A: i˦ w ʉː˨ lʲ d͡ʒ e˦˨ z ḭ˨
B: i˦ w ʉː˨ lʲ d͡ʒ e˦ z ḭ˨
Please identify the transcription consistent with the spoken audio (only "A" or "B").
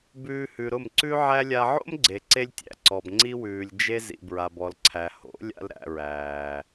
B